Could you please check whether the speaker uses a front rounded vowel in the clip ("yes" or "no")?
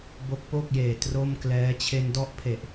no